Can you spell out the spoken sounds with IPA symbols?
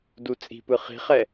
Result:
dut͡sʼi̤pɯ χi̤χɛ

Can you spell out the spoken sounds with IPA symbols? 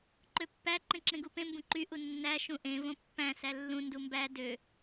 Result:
ǃøpːæ ǃẽǁẽɡupẽ mbũǃy ʔunːæ ʃũʔẽ võpːæ̃ sælːũ ndumbæ dø

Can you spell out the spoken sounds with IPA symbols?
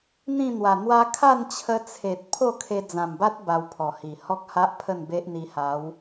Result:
n̪ĩ˥˧n̪wa˨˩n̪wa˦ kʰa˥˧nt͡ɕʰə˧t͡sʰe˨t̚ pʰo˥˧ kʰe˧d͡zã˨˩mba˦t̚ ba˧wpʰɔ˨˩hi˨˩ hɔ˦k̚ha˦ʔ pʰə˥˧nbe˦ʔn̪i˧ha˨˦w

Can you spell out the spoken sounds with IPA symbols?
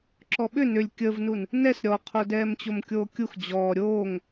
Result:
ǁɔɓʏ nʏlʲ kʲəvnun | nɛs ɾʲɔqʰo dɛːmt͡ɕomkʲoːkʲux d͡ʑɔː ɾʲoːŋ

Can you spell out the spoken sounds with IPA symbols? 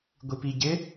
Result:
ɡʷipiɟɪ

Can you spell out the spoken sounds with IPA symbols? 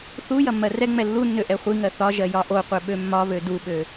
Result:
θu jɐmːɜrɛŋ͡mɛ lːunːø ʔɛχʷiŋɜ θɒʒɜ jɒʔoqʷɛ ɓømːɒβø duɓø

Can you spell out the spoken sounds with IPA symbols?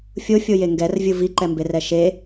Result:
fʲofʲoje ŋɡɛrvʲɯ viǃɛmberɛ ʃe

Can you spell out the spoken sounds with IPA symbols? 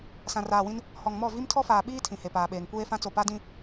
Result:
sã˨raː˨wĩ˦n | hɔ˨ŋmɔ˦˨ vi˦mtʰɔ˦faː˨ɓiː˦ tʰĩ˨he˨paː˨ɓeː˨ŋ kʷeː˦fã˦t͡so˨ pa˦dĩ˦

